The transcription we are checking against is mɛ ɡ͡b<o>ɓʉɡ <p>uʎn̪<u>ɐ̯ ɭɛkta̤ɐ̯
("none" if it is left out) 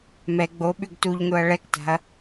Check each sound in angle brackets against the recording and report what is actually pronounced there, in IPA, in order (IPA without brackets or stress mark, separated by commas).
o, t, o